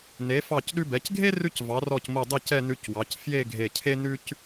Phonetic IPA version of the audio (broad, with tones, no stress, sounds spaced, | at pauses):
n e˩˧ f ɑ˧˩ c ɗ ʉ˧ b ɛ˩˧ c ɡʱ e˥ r ʉ˥ c v ɑ˩˧ r ɔ˧˩ c m o˧˩ dˤ i˥˧ c ɛ˥˧ n ʉ˧ c w ɑ˩˧ c f j e˥˧ ɡʱ e˧˩ cʰ e˥ n ʉ˥ c